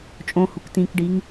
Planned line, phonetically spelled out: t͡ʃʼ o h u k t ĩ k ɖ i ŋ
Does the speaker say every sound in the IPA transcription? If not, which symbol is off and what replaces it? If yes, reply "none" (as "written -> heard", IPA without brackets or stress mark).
o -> õ